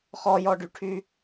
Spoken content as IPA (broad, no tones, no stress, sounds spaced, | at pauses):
χ ɔ j ɔ ɖ y ʈʰ y